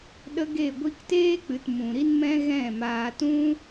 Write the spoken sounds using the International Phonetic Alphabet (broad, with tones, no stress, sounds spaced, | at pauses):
ɗ ə˦ ɡ e˦˨ ɡʷ i˦ k t eː˦ k͡p ɨ˨ t m ũ˨ ɾ i˦ n m ɛ̃˦ ɣ ɛ̃˦˨ m aː˧ t ũ˦